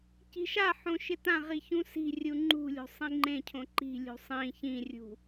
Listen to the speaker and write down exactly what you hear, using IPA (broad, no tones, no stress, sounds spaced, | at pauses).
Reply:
c i̤ ʃ a ħ õ ʃ ɪ t ã ʁ i ç ũ s i̤ rʲ u ŋ͡ǃ ṳ lʲ o̤ sˤ ĩ ŋ͡ǃ ẽ cʰ õ ǃ i̤ lʲ ṳ sˤ ĩ ç ĩ rʲ ṳ